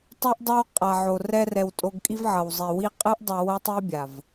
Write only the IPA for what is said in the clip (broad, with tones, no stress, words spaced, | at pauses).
tˤo˦ʔdˤa˦wqʼa˨ʕo˨ rɛ˧rɛ˨w tʼo˧ɡ kʼi˦vʕʌ˨wzˤi˨ wi˧qʼɯ˦ʔ dˤʌ˧wʌ˦ tˤi˦bʲa˨v